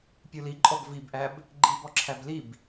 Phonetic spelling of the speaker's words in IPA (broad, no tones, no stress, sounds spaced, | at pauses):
pʲ u l i ǃʼ ɔ b v i b ʔ æ b | ɡ͡ǃ i b ɔ ǁʰ æ b l i b